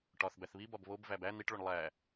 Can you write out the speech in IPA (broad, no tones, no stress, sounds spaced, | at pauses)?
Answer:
ʈ ɒ θ b æ θ β i b ɒ b β o b v æ b æ n̪ i ʈ ɭ o ɳ lˠ æ